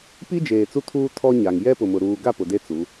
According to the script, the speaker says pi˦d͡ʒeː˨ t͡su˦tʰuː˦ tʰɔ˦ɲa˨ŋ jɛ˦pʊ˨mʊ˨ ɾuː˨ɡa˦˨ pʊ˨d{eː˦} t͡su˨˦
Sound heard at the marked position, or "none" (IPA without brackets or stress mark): e˦